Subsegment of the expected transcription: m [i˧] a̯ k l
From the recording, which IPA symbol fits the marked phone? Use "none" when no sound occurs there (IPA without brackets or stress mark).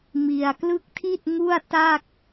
i˧